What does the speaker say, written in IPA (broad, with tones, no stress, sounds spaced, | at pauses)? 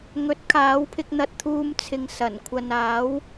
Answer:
ŋ ɵ˨˥ t̚ kʰ aː˨˥ w pʰ ɪ˧ k̚ n̪ ɐ˧ t̚ t̪ʰ uː˧ m t͡sʰ ɪ˨ ŋ s ɐ˨˩ n kʷʰ ɐ˨ n aː˨˥ w